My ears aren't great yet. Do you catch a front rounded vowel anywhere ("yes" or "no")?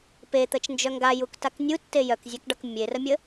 yes